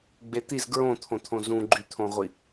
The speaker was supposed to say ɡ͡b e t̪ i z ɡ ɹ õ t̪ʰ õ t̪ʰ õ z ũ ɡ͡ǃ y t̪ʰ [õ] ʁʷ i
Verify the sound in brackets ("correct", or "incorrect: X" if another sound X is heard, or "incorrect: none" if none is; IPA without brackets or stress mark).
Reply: correct